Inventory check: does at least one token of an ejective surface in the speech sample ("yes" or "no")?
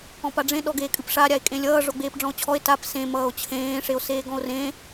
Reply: yes